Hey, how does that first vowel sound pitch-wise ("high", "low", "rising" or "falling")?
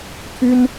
high